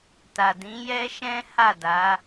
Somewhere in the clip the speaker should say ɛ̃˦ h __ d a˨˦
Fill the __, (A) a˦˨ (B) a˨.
A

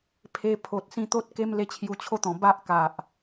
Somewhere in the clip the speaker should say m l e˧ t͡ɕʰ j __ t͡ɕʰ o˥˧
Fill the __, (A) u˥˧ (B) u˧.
B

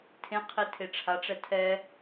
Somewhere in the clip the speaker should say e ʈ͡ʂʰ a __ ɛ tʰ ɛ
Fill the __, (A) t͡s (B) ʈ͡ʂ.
B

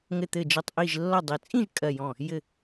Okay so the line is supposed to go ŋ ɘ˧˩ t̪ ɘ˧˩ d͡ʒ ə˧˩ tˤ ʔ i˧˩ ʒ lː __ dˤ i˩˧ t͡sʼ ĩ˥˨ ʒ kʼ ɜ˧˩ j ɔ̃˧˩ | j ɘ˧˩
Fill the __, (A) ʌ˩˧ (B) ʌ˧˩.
B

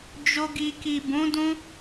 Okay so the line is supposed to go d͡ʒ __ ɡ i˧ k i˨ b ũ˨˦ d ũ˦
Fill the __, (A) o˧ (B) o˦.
B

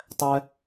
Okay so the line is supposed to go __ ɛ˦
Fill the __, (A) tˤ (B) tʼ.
A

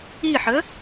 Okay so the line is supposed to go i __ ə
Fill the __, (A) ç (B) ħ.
B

